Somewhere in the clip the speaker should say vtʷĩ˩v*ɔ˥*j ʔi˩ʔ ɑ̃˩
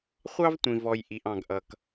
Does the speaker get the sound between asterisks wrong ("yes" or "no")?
yes